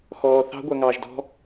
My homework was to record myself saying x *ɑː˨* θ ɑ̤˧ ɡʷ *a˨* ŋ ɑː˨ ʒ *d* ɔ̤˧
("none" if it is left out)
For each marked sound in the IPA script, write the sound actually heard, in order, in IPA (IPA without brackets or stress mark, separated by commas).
ɔː˨, a˨, d